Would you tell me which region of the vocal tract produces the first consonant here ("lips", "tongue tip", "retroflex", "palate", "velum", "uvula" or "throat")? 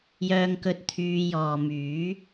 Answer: palate